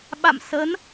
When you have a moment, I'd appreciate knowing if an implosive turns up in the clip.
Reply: yes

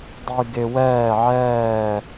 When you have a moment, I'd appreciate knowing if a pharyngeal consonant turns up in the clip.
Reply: yes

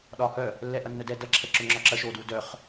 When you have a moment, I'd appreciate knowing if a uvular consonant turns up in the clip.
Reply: yes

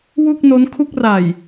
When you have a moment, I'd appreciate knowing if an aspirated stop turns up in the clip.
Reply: yes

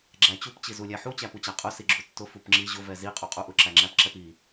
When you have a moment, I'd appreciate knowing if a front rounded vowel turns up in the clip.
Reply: no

